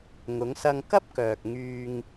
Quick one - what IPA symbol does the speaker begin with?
ŋ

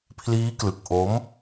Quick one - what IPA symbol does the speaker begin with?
pʰ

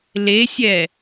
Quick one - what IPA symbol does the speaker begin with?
l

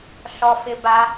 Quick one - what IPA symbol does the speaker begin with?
ɬ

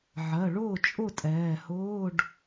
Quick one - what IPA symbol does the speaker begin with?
ʕ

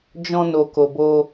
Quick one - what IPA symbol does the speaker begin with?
d͡ʒ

